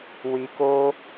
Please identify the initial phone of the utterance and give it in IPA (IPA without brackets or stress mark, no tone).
w